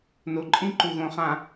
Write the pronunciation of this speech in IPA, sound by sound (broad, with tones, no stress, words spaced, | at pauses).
no˨ǃʼĩ˦ǃu˨ɣõ˨ χã˨